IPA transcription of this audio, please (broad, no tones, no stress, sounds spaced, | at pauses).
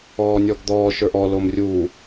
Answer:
ɔː nʲ ɔ ɡ d̪ ɔː ʃ ə˞ ʔ ɔ l o m rʲ uː